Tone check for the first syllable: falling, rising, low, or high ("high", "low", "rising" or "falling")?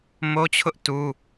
high